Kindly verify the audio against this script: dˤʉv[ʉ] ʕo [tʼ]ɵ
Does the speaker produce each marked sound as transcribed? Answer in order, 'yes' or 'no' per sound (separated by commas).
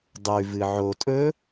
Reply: no, yes